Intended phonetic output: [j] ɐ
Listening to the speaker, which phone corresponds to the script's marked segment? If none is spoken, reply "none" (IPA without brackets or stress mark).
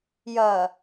j